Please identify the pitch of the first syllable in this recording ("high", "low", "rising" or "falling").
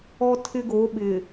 high